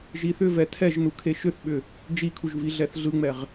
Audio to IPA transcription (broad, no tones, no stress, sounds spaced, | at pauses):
ʒ i θ ʏ v ɛ tʰ ɛ ʒ n u kʰ e ʃ ʏ θ ɓ ʏ | d͡ʒ i kʰ u ʒ v i ɮ ɛ θ ɮ ɯ ŋ͡m ɛ ʁ